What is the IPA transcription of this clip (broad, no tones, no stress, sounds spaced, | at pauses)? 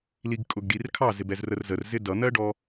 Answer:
l i ɡ kʼ ʊ ɡ ɖ i r kʰ ɑ z ɪ b ɛ z r ə r z ə r z ɪ d ʌ n̪ ɜ ɖ ɔ